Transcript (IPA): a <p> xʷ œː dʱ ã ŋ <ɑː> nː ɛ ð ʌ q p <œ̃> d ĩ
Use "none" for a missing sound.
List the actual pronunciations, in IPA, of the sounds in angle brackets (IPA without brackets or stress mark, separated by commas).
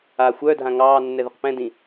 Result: none, ɑː, ɛ̃